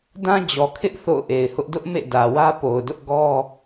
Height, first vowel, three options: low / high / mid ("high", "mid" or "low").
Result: low